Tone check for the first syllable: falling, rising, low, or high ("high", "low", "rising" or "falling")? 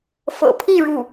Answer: low